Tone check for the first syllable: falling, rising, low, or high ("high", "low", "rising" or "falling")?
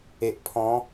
low